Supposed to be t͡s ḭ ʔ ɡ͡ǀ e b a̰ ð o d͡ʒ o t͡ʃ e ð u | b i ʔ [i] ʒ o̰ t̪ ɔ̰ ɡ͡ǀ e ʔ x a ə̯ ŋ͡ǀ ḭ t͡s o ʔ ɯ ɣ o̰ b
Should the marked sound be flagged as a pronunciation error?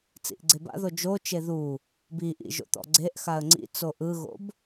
yes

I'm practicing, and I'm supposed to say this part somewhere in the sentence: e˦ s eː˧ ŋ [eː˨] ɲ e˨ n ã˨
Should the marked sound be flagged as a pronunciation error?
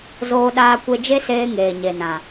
no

